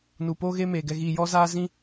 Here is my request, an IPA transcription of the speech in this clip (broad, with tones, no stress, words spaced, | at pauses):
nu˨po˦ɣe˦me˨ ɡɛ˨ɣi˨jɔ˦ zaː˦zĩ˦